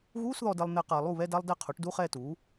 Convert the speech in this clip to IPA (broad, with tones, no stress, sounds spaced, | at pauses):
ɣ uː˧˥˧ s ð ɔ˨ d ɛ˨ lˠ n̪ ɛ˨ q a˨ lˠ u˥˩ β ɛ˧˥˧ d a˥ lˠ d ɛ˥˧ qʰ u˩˥ ʈ d u˧˥˧ χ ɛ˥˧ t u˩˥